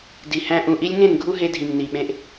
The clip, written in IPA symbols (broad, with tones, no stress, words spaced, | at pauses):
di˨hæ̃˧ ʔũ˨ʔi˧lʲŋẽ˦˨n ɡʱu˦ɦe˧dʱĩ˨ŋ ni˨ɓẽ˧ʔ